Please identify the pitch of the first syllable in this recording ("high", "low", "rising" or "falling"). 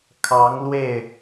rising